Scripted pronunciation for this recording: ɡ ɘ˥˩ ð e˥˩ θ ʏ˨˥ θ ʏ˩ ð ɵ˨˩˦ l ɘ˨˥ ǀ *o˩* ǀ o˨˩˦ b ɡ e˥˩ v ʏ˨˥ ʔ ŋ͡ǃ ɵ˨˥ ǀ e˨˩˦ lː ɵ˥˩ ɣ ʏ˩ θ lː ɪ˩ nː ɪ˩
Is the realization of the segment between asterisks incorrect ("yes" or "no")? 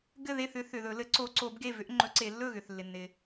yes